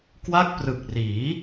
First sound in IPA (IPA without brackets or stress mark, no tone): k